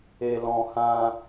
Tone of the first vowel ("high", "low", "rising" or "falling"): low